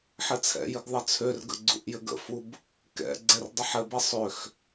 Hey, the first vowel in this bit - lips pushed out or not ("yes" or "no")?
no